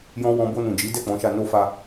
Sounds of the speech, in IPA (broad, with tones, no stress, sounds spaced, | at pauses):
j ɔ̃˧ w ɔ̃˧ b o˧ n ũ˨ d͡ʒ i˨˦ d ɛ˦˨ k͡p ɔ̃˨˦ ʃ a˧ n o˧ f a˧